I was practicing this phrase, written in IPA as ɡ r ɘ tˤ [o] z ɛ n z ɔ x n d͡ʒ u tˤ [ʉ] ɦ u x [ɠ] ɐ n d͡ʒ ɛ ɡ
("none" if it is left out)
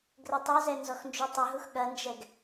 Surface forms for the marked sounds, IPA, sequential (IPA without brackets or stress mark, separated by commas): o, ɘ, ɠ